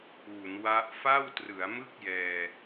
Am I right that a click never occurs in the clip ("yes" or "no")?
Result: yes